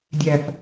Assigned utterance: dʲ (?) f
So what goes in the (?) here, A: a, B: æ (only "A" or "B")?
B